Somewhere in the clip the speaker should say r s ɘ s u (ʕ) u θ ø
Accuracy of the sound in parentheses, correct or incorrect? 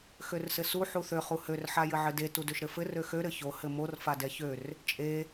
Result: incorrect: ħ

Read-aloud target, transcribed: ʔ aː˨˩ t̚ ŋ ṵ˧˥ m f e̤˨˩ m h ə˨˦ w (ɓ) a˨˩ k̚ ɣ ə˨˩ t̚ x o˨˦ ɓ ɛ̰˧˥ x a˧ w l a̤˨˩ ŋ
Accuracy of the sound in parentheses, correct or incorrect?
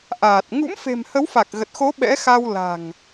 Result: incorrect: f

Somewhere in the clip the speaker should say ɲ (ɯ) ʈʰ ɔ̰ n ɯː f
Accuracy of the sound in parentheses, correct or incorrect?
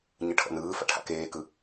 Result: correct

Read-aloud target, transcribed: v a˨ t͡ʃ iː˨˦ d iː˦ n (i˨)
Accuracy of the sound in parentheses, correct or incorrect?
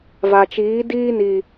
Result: correct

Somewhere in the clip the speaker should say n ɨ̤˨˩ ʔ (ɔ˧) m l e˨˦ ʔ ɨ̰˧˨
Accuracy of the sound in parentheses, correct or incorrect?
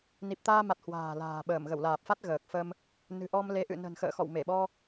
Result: correct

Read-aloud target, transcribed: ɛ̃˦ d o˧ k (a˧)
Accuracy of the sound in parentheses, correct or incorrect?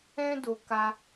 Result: correct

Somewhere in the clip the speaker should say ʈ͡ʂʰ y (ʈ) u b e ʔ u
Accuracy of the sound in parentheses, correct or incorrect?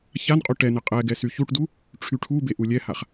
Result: incorrect: ʈʰ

